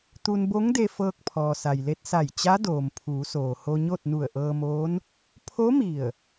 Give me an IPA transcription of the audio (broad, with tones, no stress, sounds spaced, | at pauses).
t̪ u˧ n b o˧˥ ŋ d e˧ f ɤː˧ k̚ pʰ ɔː˩ s a˩ j l e˧ t̚ s a˧˩ j t͡ɕ a˧˥ d oː˩ m pʰ uː˩˧ s oː˩ h o˧ ɲ o˥˨ t̚ n u˧˩ ə̯ ʔ ɤː˧ m oː˧˥ n | pʰ o˧˥ m i˧˩ ə̯